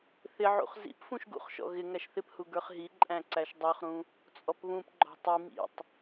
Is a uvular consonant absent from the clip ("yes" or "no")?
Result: no